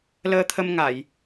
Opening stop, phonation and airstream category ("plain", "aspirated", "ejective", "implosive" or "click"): aspirated